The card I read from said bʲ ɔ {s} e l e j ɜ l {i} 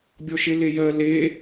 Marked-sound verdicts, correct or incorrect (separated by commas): incorrect, incorrect